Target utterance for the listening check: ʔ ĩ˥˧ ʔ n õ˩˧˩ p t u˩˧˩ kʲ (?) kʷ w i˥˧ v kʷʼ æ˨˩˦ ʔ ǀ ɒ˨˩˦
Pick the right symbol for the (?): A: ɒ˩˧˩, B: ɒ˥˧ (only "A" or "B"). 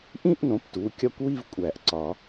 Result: B